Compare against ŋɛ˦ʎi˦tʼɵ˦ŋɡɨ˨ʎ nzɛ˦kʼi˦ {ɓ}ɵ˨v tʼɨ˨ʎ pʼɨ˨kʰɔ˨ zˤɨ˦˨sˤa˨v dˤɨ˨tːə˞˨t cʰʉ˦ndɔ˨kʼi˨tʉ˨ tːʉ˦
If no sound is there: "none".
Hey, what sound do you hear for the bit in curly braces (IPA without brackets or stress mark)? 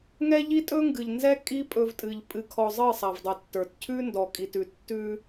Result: pʼ